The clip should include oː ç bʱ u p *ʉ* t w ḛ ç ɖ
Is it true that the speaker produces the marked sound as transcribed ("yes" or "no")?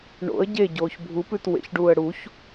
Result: yes